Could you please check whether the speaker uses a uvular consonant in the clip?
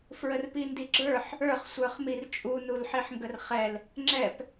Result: yes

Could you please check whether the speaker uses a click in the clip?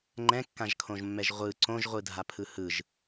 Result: yes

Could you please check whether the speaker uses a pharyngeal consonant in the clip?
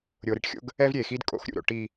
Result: no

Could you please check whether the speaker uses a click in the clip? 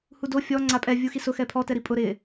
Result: yes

